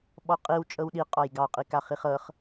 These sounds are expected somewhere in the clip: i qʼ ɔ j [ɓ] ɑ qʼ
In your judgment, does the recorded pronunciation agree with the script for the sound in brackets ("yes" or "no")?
no